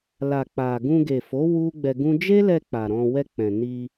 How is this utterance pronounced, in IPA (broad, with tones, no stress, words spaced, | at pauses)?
la˨k͡pa˨ ɡũ˧ɡe˨fo˨˦ wu˦ɡ͡bɛ˧ɡũ˦ d͡ʒe˦lɛ˧ k͡pa˨ɾɔ̃˧ wɛ˧ k͡pɛ̃˨ ni˧